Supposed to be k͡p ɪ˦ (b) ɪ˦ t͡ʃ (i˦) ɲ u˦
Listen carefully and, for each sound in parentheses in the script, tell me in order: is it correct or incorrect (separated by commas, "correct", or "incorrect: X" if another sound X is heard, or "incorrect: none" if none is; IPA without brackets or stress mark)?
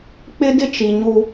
incorrect: d, incorrect: i˨